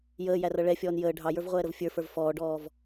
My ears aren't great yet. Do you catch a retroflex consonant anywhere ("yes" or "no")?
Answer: yes